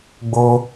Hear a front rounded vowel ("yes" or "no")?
no